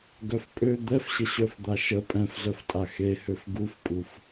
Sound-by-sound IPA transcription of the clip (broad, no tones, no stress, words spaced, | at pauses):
ɡœfpʼø d̪ɛfɕə ɕœfd̪aʃə pʼɛ̃fzœftʼa xehøf ɡufpʼuf